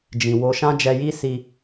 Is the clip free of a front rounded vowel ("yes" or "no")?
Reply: yes